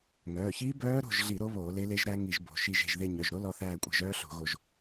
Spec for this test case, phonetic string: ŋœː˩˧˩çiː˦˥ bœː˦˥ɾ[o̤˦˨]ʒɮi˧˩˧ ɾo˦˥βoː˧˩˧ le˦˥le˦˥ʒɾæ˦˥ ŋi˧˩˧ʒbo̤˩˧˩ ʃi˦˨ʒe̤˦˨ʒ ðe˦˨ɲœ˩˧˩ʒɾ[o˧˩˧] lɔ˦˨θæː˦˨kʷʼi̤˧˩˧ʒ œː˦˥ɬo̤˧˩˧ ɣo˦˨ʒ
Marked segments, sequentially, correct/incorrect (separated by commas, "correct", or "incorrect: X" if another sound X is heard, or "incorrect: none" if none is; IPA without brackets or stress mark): correct, incorrect: o˦˥